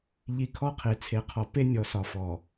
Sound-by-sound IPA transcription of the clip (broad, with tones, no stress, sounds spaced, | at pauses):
ʎ i˨ kʰ ɔ˦ qʰ e˨˦ t͡sʰ e˨ qʰ ɔ˨ p e˦ nʲ ɔ˨ s ɒ˨ f ɔ˨